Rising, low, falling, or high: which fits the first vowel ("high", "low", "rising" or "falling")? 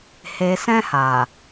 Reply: low